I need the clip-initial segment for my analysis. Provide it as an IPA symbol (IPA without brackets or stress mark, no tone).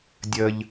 dʲ